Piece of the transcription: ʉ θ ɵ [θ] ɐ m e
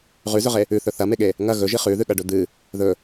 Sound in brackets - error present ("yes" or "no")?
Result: no